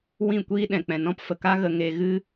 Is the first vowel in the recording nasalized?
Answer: yes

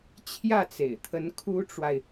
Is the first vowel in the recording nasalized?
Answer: no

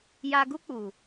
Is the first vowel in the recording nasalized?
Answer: no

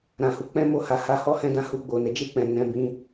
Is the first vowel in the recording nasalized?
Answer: yes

